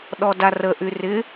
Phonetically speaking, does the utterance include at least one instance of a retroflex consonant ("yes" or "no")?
no